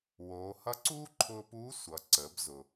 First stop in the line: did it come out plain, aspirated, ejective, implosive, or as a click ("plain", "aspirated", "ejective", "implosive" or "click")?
click